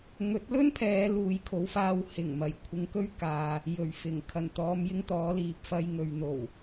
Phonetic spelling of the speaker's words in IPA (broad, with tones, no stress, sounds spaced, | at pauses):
ŋ ɵ˨˥ t̚ l ɵ˥ n pʰ ɛː˨˧ l uː˨ j kʰ o˨˧ w f aː˧ w h ɪ˨˩ ŋ m ɐ˨˩ j kʷʰ ɪ˨˧ ŋ k ɵ˥ ɥ k aː˨ | j ɵ˨˩ ɥ f ɪ˨˩ ŋ kʰ ɐ˨˩ n t̪ ɔː˨˧ m j ɪ˥ ŋ t̪ ɔː˨˥ l iː˨ p̚ f ɐ˧ j ŋ ɵ˨ ɥ n̪ o˨˩ w